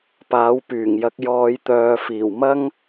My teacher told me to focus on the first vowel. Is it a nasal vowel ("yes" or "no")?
no